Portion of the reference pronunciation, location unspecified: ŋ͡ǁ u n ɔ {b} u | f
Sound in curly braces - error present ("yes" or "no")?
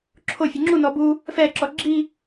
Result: no